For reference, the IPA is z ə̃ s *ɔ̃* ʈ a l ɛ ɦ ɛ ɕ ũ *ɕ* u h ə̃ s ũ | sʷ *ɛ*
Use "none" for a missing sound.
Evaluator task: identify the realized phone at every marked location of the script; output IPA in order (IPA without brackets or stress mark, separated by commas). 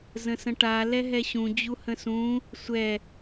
ə̃, d͡ʑ, ɛ